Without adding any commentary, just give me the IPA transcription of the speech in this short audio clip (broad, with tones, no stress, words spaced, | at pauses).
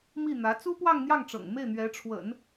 mi˥˩n̪ä˧˥ t͡su˥pwɑ˥˧ŋn̪jɑ˥˩ŋʈ͡ʂɤ̰˨˩ŋ me˥˩ɪ̯n̪ɥɛ˧˥ʈ͡ʂʰwə̰˨˩˦n